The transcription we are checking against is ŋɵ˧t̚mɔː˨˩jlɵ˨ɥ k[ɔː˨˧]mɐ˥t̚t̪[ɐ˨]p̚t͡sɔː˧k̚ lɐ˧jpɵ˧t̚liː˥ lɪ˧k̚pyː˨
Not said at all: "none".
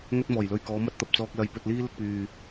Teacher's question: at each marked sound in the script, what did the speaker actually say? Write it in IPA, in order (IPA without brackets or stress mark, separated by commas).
ɔː˨˧, ɐ˨